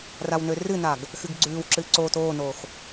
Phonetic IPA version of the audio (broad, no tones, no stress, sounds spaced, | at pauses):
r a w n ø r ɨ n a ɡ | x ɨ ɡ ɡ͡ǀ ʉː w ǁ ɨ ǀ oː t oː n oː x